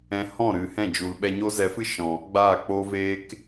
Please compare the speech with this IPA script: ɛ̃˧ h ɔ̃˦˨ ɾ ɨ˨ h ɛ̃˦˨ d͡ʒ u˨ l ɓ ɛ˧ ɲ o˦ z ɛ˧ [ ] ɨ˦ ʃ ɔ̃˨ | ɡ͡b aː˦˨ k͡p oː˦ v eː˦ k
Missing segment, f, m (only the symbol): f